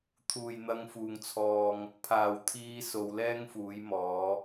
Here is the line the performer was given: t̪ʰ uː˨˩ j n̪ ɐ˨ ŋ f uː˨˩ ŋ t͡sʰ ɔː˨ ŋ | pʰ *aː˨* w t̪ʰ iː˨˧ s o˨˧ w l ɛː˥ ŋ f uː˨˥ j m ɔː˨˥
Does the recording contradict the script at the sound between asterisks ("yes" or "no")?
yes